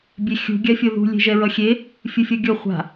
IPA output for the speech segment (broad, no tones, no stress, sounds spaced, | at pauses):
bʲ e xʲ ṳ ɡʲ a fʲ o ð ṳ lʲ e̤ ʒ ɛ ɹ ʌ xʲ e | fʲ ɯ fʲ ʌ ɡʲ ʌ χʷ a̤